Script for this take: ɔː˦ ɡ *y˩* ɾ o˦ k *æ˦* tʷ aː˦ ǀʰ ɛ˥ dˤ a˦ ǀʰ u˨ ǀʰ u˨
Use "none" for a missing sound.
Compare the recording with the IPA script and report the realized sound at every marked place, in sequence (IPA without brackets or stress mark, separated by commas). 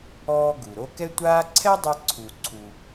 u˩, ɛ˦